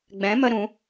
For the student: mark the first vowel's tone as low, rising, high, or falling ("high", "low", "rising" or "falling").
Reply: rising